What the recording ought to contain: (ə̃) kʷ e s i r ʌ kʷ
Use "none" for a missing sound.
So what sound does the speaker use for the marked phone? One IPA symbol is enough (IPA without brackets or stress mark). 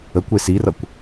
ə